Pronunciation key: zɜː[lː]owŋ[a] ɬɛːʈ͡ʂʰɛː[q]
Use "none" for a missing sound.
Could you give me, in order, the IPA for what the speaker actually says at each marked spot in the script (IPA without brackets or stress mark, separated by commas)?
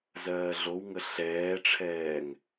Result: ɮ, ə, ŋ